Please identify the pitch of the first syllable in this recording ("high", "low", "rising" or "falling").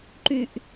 high